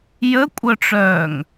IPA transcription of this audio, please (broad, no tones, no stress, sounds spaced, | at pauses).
j ə kʷʼ œ ʈ͡ʂ œː ŋ